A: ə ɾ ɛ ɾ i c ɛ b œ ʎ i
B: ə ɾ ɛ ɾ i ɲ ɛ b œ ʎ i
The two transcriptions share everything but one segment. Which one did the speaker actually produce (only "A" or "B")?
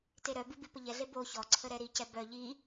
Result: A